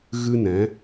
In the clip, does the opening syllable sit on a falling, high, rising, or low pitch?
high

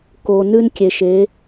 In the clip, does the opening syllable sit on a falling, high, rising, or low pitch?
low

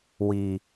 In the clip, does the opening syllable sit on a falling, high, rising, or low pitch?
high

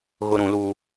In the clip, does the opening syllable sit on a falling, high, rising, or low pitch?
high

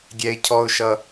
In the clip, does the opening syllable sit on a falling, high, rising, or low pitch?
high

